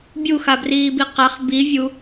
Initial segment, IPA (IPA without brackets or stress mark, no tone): bʲ